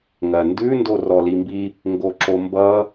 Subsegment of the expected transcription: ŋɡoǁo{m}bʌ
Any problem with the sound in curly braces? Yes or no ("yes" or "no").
no